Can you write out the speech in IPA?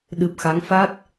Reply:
ɗ ɨ˨˩ p̚ x a˨˦ ŋ f a˦˥ t̚

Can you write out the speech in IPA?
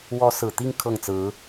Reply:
w ɔ˧˥ s ɹ̩˨˩ t̪ i˥˧ ŋ kʰ ɤ˥˩ ŋ t͡s ɹ̩˧˥

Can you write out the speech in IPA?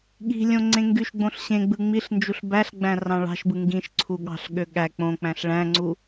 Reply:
ɠ i̤ lʲ õ ŋ͡ǀ ẽ ŋ ɡ y ʃ ɡ͡b õ ɬ ɕ ẽ ɡ͡b ɯ ŋ͡m i ɬ n d͡ʒ u ɬ b æ ɬ ɡ͡b æ̃ r ɑ̃ ɭ ɑ̤ ʃ b ɯ ŋ ɡ ĩ ʃ ǀʰ u ɠ ɑ̤ ɬ ɠ ø ɠ æ k͡p õ k͡p æ̃ ɬ ɭ æ̃ ŋ͡ǀ u

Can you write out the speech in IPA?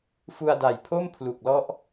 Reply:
f u˧ a̯ d a˨˩ j pʰ o˥˩ m pʰ l u˨˩ k̚ l ɔ˦˥ ʔ

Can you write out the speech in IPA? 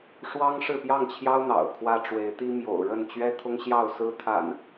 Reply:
ʂ w ɑ˦ ŋ ʂ ɻ̩˥˨ p j ɑ˥˨ ŋ t͡ɕʰ j ɑ˦ ʊ̯ n̪ ɑ̰˨˩ ʊ̯ kʰ w ä˦ ʈ͡ʂ w e˨˦ ɪ̯ t̪ i˦ m j o̰˨˩ ʊ̯ ɻ ə˥˨ n t͡ɕ ɥ ɛ˦ t̪ʰ ʊ˦ ŋ ɕ j ɑ˥˨ ʊ̯ s ɹ̩˦ t̪ʰ a̰˨˩ n

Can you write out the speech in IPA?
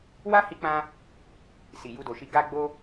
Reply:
w a˦ h i˧ k͡p ã˧ | s i˨ j u˧ d o˨ ʃ i˧ ɡ a˦ ɡ͡b o˦

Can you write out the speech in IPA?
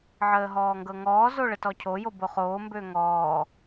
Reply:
ʕ əː ɦ ɔː ŋ ɡ ɤ ŋ ɔː z o ɭ ə t ɔ cʰ o j o b o χ oː m b ø ŋ ɔː

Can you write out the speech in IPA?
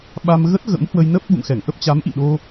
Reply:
ɓ a˧ m ɣ ə˦˥ t̚ ɣ ə̰˧˥ m h w ə˧ j n ə˦˥ p̚ ɓ ṵ˧˨ ŋ x ɛ˧˩ ŋ ʔ ə˦˥ p̚ t͡ɕ a˨˦ m ʔ ḭ˧˨ ɗ o˧

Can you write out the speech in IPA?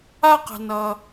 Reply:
a˦ q ə̤˨ n ʌ˨

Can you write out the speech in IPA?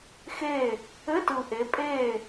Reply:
x e˥˨ | ɘ˧˥˧ t ɯ˨˩ ʔ e˨˦ pʼ eː˥˨

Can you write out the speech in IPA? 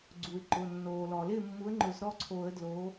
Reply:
ɡ͡ǀ u˩ ɪ̯ ǃ ʊ˩˧˩ nː oː˩ l ɔ˩ l ɪ˥˩ mː u˨˥ ə̯ ŋ͡ǃ ʊ˨˩˦ z ɾ ɔ˦ ǀʰ o˨˩˦ ə̯ d l oː˨˥

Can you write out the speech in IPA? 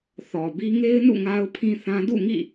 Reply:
θ ɔ˨ b i˦ ŋ e˦ ɪ̯ n ṵ˦˨ ŋ a˦ ʊ̯ pʰ ĩ˦ θ ã˦ d ṵ˦˨ ŋ ḭ˦˨

